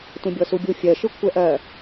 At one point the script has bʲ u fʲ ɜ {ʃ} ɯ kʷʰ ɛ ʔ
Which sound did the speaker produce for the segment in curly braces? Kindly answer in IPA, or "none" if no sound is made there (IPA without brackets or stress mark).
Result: ʃ